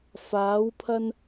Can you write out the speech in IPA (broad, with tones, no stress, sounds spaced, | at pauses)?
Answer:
f aː˨˧ w pʰ ɐ˧ n